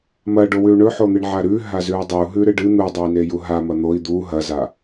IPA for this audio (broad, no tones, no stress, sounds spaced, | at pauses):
m ɐ ɖ o w ʉ u̯ ɳ ɵ ħ o n̪ ɨ ɳ ʕ a ɾ ʉ ɦ a z ʉ u̯ dˤ i u̯ ɦ ʉ ɾ ɨ ɖ ɨ n̪ u dˤ ɵ i̯ n e j u ɦ a m ɐ n̪ o i̯ d̪ u ɦ ɐ z a